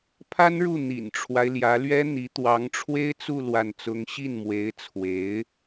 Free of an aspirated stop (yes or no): no